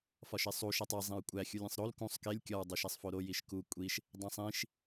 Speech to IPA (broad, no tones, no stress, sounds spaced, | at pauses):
f ɒ ʃ e sˤ u ʃ æ tˤ e zˤ ĩ ɹ kʷʼ æ xʲ u lʲ ẽ sˤ ɾ o l k ũ sˤ k e lʲ kʲ ɒ ɹ dˤ o ʃ æ sˤ f o ɾ o j i ʃ k u kʷʼ i ʃ | dˤ æ̃ sˤ ĩ ʃ